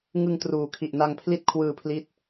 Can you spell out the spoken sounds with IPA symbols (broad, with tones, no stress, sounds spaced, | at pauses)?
ŋ ɯ˧ ŋ t r uː˩˦ kʰ i˨˩ ʔ n a˧ ŋ pʰ l i˦˥ t̚ kʰ w ɯː˧ pʰ l i˦˥ t̚